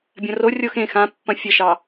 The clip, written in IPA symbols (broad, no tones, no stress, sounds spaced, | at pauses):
bʲ ɐ̃ r o rʲ o x ẽ x ã pː ɐ̃ fʲ ə ʃ ɑ